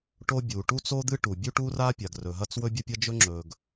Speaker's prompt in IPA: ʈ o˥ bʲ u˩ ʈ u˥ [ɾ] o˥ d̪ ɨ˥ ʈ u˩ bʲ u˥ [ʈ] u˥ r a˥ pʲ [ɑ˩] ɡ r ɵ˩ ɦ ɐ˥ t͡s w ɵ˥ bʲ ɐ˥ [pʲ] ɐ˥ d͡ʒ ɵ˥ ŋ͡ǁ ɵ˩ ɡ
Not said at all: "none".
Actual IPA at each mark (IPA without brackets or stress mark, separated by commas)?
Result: t͡s, ʈ, a˩, pʲ